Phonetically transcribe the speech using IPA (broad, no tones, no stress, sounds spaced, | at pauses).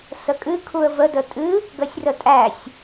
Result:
s ə kʼ ɨ kʰ u ə̯ v ə d ə tʼ ɨ | ɡ ə sʲ r ə tʼ æ sʲ